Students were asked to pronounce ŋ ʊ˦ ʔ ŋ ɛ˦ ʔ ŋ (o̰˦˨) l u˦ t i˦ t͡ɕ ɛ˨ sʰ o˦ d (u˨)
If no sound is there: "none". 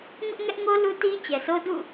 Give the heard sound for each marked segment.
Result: o˦, ṵ˦˨

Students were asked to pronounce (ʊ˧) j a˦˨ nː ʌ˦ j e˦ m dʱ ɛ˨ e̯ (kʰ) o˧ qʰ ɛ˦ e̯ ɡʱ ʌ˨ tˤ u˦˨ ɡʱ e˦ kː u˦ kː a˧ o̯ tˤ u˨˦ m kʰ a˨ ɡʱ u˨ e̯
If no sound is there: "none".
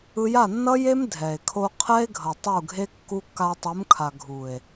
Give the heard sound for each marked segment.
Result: ɯ˧, kʰ

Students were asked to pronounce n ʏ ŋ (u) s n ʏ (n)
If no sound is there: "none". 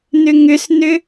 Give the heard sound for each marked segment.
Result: ʏ, none

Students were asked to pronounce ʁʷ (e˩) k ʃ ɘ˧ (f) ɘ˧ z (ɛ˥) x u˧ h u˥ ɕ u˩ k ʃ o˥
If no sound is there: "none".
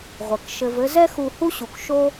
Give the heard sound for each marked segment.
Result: ɘ˩, v, ɛ˥

